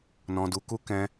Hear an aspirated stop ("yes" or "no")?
no